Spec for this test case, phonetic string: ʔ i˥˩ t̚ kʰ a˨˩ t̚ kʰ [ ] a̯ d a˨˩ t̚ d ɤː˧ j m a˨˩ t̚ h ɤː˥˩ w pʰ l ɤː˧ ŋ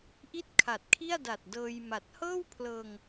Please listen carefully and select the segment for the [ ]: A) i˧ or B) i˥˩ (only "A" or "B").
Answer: B